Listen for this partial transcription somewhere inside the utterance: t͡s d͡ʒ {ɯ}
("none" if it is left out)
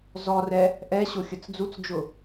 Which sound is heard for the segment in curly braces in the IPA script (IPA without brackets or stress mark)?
ʊ